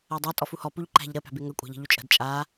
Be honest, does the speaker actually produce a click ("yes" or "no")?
yes